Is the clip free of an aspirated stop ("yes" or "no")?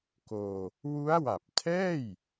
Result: no